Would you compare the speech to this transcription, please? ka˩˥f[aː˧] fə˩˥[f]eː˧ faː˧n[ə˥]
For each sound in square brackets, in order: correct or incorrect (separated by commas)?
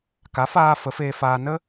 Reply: correct, correct, correct